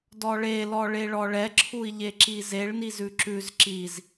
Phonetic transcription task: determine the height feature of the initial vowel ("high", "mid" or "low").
mid